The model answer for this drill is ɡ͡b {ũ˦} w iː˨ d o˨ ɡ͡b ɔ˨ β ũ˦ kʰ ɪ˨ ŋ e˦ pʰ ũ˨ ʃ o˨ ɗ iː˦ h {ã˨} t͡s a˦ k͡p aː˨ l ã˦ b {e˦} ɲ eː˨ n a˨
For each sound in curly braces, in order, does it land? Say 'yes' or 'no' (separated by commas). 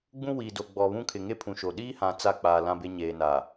yes, yes, yes